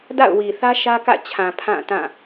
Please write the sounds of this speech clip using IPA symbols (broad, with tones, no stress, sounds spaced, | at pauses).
d a̰˦˨ ʊ̯ w i˨ θ ä˦ ʃ ä˦ k ä̰˦˨ t͡ɕʰ ã˨ pʰ ã˦˨ t ã˦˨